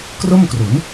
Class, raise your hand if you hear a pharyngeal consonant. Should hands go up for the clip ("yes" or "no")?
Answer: no